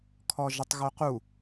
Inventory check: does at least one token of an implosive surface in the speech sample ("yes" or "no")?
no